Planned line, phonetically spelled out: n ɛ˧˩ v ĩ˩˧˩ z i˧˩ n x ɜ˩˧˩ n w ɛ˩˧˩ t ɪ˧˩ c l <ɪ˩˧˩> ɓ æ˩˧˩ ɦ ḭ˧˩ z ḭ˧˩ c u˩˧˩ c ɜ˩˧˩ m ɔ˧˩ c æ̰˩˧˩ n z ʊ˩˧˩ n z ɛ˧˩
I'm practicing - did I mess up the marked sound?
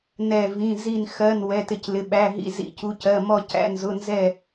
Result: no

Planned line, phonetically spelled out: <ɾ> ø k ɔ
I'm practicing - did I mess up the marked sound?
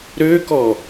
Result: no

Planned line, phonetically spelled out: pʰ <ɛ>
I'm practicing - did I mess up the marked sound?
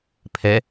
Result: no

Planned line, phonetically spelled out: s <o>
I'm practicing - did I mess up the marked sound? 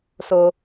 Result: no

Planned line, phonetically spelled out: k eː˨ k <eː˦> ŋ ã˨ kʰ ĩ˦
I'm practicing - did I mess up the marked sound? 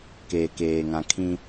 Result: yes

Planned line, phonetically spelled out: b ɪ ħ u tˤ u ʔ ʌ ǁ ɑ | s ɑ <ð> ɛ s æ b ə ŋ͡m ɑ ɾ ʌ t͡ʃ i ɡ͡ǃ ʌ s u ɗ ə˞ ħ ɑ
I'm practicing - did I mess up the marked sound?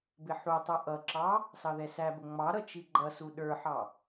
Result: no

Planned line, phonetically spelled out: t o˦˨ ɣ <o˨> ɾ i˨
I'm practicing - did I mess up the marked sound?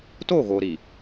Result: no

